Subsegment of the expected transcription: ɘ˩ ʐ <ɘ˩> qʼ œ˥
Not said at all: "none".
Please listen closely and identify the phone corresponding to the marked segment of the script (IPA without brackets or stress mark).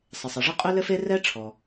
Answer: ɘ˥